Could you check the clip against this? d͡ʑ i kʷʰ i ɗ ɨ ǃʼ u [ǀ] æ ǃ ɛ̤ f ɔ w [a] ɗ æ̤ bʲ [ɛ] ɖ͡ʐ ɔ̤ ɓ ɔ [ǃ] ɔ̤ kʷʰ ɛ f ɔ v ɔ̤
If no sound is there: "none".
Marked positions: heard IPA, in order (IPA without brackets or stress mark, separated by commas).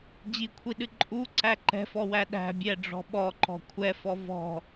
ǀ, æ, ɛ, ǃ